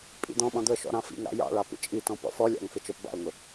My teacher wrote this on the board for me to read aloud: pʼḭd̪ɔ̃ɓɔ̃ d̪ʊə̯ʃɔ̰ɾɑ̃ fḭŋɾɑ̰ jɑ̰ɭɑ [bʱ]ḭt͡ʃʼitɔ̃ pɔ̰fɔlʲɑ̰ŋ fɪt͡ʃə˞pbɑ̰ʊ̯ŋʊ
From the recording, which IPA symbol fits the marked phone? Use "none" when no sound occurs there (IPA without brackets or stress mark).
p